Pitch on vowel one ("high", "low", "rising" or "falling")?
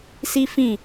high